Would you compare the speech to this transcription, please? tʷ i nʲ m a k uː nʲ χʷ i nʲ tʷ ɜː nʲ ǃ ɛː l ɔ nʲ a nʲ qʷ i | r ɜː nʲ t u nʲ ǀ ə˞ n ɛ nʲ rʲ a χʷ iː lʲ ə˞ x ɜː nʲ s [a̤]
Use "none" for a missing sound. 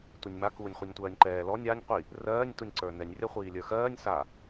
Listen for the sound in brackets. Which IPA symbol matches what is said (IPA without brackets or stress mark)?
a